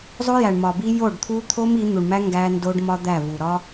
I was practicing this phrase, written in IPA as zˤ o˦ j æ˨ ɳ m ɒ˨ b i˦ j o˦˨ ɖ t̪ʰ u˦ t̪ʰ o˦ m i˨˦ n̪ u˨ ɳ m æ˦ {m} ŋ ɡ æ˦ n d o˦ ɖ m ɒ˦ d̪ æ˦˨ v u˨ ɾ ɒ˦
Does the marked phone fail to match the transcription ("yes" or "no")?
yes